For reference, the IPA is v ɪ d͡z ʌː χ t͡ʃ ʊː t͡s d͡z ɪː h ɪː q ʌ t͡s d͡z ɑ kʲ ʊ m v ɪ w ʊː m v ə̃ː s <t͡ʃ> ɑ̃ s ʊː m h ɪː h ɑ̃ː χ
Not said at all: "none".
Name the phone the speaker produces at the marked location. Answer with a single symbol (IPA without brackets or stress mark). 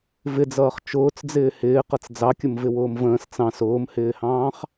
t͡s